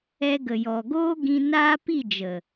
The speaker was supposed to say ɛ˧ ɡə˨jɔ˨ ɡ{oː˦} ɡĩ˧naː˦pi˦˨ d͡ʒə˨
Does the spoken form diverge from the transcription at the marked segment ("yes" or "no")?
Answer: no